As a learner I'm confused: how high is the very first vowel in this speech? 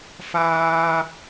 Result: low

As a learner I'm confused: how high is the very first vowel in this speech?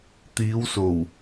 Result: high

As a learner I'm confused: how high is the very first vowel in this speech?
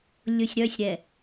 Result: mid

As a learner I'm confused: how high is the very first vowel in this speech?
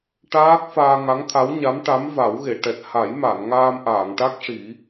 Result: low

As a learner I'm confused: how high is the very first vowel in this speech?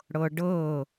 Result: mid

